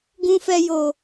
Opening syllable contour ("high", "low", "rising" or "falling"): low